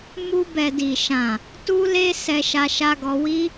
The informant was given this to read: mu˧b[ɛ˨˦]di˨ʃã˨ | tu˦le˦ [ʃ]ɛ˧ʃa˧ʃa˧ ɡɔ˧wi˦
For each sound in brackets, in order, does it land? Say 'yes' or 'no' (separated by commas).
no, no